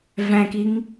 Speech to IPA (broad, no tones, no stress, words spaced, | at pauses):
væ̃kiŋ